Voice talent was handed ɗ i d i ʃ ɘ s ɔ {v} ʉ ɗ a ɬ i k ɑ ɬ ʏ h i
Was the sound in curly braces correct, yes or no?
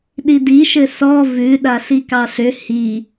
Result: yes